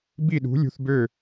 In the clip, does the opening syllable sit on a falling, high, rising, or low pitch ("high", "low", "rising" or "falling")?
falling